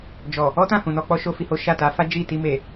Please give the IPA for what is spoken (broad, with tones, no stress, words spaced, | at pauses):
d͡ʒɔ˨ | ɔ˦tã˦˨ hũ˨nɔ˧k͡pɔ˦ʃo˦ fi˧ho˦ ʃa˦˨ta˨˦ fa˦d͡ʒi˦˨ ti˧me˨